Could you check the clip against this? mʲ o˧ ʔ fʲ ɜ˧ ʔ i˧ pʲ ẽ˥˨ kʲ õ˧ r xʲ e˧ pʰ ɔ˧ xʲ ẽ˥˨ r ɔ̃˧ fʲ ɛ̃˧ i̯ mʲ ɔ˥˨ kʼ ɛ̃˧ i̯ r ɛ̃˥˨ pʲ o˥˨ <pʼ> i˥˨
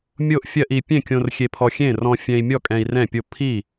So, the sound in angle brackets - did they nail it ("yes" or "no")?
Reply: no